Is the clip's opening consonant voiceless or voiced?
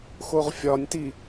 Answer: voiceless